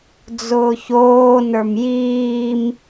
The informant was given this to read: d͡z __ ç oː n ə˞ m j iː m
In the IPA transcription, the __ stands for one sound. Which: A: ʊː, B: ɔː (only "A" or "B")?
A